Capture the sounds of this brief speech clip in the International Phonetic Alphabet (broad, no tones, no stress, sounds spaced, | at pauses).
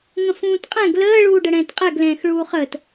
ŋ ə̃ f ũː t qʼ ɛ̃ ɡ l əː ɭ uː ɖ ə ɽ ɛ̃ː t qʼ ɛ ɡ l ɛ̃ː x ɭ uː χ əː t